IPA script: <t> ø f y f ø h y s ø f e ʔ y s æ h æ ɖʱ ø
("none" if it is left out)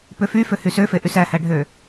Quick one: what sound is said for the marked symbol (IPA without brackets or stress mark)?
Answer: p